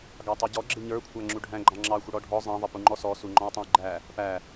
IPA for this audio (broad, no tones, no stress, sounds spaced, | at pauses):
ɡ ɑ tˤ ʌ ɟ ɔ ɡ͡ǁ ɪ ɲ ə˞ kʷʰ æ ŋ͡ǁ u ɖʱ æ̃ ɡ͡ǃ ɑ̃ ŋ͡ǁ ɑ xʷ ɪ ɽ ɔ ɖʱ ɔ zˤ ɑ̃ ðˤ ʌ p u ŋ͡ǃ ɔ s ɔ s u ŋ͡ǃ ɔ̃ j tˤ ũ j ɡ͡ǃ æ | p æ